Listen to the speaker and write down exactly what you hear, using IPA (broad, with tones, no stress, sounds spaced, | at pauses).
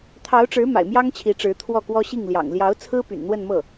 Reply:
t̪ʰ ɑ˧˥ ʊ̯ ʈ͡ʂ ɻ̩˧˥ m a̰˨˩ ɪ̯ m j ɑ˥ ŋ t͡ɕʰ i˧˥ ʈ͡ʂ ɻ̩˧˥ t̪ʰ w ɔ˥˩ k w ɔ˥ ɕ i˥˩ ŋ l j ɑ̰˨˩ ŋ l j ɑ˧˥ ʊ̯ t͡sʰ ɹ̩˥ p y̰˨˩ n n̪ w ə˥˧ n m ɤ˥˩